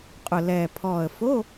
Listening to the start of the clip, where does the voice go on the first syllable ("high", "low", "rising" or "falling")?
low